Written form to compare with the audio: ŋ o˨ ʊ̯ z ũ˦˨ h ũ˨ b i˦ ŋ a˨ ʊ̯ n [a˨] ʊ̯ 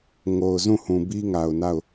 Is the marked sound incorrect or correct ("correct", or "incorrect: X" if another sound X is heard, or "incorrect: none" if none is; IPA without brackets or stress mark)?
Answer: incorrect: a˦˨